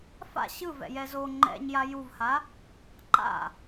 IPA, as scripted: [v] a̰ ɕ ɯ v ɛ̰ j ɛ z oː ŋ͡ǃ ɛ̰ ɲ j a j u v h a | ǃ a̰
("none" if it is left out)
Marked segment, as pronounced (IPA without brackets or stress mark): f